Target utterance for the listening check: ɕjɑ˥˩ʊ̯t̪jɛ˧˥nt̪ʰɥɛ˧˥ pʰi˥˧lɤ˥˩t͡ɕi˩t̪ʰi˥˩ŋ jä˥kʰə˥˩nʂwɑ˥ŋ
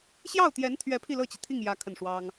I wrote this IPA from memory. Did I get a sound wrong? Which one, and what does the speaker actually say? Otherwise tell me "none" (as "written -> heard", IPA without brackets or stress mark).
none